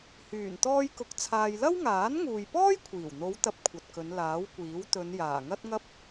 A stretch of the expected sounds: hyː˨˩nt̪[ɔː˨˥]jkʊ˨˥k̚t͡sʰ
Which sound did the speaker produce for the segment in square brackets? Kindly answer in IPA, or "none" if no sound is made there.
ɔː˧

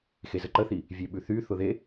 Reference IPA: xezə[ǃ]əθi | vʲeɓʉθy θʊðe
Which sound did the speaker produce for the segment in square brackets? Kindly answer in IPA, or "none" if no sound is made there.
ǃ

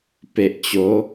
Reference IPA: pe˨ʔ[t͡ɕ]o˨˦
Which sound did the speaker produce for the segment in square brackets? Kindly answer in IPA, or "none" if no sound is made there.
t͡ɕ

